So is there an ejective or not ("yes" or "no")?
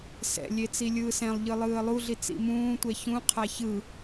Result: no